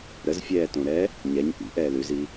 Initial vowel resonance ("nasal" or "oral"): oral